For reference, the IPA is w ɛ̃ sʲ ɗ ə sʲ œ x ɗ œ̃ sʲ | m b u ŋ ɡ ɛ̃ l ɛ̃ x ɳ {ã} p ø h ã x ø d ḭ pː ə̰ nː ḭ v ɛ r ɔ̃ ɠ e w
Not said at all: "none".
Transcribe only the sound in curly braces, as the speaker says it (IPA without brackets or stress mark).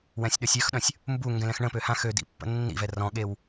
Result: ə̃